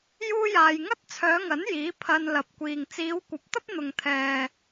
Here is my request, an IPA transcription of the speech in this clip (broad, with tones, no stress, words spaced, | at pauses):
juː˥jaː˧j ŋɐ˥t̚t͡sʰœː˨˧ŋɐ˨˥n jiː˨˥ pʰɐ˧nlɐ˨p̚kʷiː˨ŋ t͡siː˨˧wkʷɐ˨˥p̚ t̪ɐ˥p̚n̪ʊ˨ŋ t̪ʰɛː˨